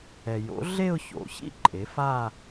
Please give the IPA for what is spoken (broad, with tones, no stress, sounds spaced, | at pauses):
ɛ˩ j o̰˩˥ ɮ e˥˧ ʊ̯ ç o̰˩˥ ç ḭ˥˧ ǃʼ e˩˥ f a˥˧